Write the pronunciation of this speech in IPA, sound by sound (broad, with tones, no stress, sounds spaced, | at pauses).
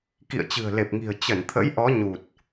k ḭ˧˨ ə̯ t͡ɕ ɨ̤˨˩ ə̯ l e˨˩ p̚ ŋ i̤˨˩ ə̯ t͡ɕ ə˧˩ n t̪ʰ ə̰˧˥ j ʔ ɔ˨˦ ɲ u˨˩ t̚